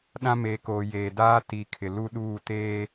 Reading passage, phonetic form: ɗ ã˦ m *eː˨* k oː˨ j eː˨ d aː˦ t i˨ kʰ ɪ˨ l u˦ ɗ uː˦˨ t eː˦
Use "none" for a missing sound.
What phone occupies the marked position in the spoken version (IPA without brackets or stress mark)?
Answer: eː˨